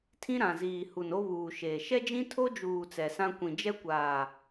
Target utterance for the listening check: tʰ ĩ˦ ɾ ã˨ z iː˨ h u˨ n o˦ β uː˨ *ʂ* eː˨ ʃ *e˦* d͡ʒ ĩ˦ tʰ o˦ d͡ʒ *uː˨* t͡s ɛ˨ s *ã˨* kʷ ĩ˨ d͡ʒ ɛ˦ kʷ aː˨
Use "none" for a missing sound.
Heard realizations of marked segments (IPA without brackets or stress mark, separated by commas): ʃ, ɛ˦, uː˨, ã˦